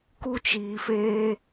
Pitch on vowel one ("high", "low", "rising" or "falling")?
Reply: high